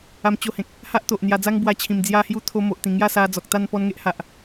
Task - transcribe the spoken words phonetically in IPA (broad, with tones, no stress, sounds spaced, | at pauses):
a˧ m t͡ɕ o˧ h ẽ˨ k̚ | h a˦ ʔ t̪ o˨ ʔ n̪ j a˧ d͡z a˦ ŋ b w a˧ t͡ɕʰ ĩ˨˩ m d͡z j a˧ h j u˧ t̪ʰ o˧ m o˨ ʔ t̪ ĩ˨˩ ŋ j a˥˧ s a˧ d͡z ɔ˨ k̚ t̪ a˥˧ n p ɔ˧ n ŋ e˦ ʔ h a˨ ʔ